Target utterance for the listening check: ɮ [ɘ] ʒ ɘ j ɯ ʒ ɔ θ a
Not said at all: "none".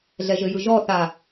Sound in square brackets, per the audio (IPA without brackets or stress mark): ɛ